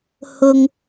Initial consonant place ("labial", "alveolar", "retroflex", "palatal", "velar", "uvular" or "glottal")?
glottal